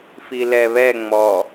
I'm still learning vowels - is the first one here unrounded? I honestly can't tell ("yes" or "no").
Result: yes